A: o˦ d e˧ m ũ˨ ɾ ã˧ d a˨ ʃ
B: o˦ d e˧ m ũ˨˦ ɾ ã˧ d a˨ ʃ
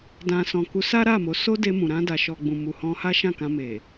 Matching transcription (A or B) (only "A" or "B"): A